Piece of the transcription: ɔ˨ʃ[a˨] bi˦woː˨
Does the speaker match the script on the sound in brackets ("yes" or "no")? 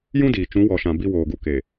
no